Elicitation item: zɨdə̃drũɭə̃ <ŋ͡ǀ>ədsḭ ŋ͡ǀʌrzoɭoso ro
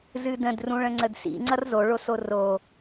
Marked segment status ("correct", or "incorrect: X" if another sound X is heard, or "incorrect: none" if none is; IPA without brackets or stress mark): correct